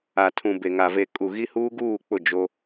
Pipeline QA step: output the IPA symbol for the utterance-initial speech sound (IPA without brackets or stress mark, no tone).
a